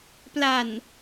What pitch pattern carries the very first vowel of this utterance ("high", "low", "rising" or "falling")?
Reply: low